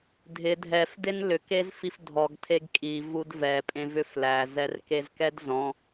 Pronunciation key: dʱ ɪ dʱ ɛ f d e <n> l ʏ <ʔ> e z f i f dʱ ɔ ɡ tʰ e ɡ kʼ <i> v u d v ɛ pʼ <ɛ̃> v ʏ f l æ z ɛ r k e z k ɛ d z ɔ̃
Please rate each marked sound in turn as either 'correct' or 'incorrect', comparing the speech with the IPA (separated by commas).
correct, incorrect, correct, incorrect